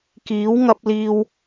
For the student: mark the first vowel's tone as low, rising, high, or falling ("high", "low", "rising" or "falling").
rising